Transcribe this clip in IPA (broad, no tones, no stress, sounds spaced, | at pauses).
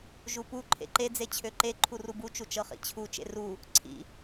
ʒ u p u ǃʰ ḛ ǃ e d͡z e t͡ɕʰ ø ǃ e ǃʰ u r u b u t͡ʃ u t͡ʃ ɤ χ ḭ t͡ɕʰ u t͡ʃ ḛ r u | ǀʰ ḭ